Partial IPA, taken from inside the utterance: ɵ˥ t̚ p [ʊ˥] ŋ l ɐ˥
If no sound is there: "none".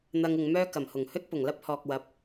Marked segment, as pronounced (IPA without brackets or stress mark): ʊ˨˩